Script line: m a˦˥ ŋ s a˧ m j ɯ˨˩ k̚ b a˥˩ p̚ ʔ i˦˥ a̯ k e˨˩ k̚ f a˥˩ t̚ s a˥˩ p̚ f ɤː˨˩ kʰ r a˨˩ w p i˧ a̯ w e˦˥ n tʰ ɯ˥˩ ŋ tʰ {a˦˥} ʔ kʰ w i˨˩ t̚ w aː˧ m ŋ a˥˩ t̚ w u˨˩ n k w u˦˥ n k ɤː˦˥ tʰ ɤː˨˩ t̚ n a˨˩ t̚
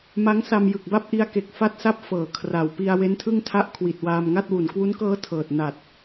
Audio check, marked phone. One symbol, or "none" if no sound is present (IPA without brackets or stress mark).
a˦˥